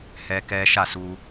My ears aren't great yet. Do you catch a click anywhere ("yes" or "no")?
no